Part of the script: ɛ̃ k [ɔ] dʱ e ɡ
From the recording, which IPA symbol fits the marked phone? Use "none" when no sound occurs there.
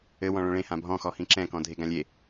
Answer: ɔ̃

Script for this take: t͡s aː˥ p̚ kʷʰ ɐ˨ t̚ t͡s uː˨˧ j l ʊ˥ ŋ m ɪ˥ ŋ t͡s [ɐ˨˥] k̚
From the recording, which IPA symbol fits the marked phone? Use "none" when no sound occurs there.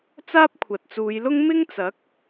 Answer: ɐ˨˥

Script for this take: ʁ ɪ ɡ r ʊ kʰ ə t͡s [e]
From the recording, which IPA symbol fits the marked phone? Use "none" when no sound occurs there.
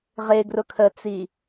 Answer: i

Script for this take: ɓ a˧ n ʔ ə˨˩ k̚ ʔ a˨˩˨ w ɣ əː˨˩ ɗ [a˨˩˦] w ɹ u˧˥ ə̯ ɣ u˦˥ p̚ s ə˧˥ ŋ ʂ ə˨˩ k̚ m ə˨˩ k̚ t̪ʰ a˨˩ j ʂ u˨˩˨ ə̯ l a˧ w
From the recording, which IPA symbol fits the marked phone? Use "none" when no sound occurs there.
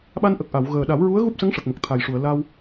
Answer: a˨˩˦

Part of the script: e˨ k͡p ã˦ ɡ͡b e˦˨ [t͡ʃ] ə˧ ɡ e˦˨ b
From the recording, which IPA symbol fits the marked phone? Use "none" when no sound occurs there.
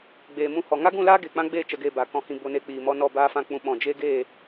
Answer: t͡ʃ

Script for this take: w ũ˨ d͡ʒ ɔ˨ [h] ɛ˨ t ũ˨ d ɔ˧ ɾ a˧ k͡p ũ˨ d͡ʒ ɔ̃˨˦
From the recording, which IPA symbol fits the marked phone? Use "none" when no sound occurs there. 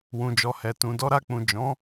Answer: h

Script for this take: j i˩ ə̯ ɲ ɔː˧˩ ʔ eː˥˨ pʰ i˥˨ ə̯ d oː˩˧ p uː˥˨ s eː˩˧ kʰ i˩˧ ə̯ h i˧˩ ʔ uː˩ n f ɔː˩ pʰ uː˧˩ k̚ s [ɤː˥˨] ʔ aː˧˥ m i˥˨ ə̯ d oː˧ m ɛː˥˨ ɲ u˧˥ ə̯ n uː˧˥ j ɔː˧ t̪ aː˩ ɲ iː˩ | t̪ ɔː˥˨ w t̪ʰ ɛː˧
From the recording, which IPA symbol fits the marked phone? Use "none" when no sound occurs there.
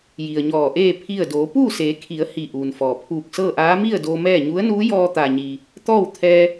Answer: ɤː˥˨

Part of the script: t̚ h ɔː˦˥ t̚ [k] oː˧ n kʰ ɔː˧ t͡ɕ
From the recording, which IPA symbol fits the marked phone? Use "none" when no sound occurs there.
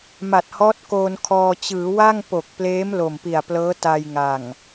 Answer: k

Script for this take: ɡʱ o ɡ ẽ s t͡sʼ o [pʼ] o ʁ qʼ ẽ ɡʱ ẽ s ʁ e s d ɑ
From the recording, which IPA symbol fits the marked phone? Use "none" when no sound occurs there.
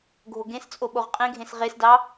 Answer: ɓ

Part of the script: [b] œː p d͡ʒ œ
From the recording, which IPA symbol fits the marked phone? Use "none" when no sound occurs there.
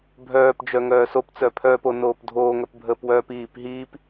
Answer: bʱ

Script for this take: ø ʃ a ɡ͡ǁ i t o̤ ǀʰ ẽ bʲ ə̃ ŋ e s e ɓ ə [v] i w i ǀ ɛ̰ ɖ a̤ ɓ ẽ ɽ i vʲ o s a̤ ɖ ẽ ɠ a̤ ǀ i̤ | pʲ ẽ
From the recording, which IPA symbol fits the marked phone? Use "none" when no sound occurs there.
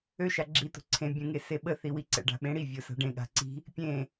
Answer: θ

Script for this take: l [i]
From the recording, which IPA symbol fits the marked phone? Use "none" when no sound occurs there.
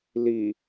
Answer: i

